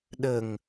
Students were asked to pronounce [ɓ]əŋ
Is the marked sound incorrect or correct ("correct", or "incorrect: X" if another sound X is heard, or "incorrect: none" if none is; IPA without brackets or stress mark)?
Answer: incorrect: ɗ